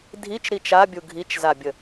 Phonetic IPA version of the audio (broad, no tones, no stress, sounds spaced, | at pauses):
dʱ i t͡ʃ ɾ i t͡ʃ a bʲ u ɡʱ i t͡ʃ z a bʲ ə